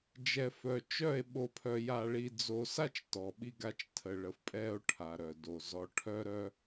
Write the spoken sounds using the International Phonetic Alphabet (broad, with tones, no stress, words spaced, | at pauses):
d͡ʒɛ˨fœ˨t͡ʃœ˦˨e̯ ɓo˨pʰœ˨ja˨ɭi˨ d͡zo˨sa˦t͡ʃ tɔ˨ɓi˦ɡa˦t͡ʃ tʰə˨ɭə˨fpʼɛ˦o̯ ʈʰa˨ɾœ˨do˨ zɔ˨ʈʰœ˦ɾœ˦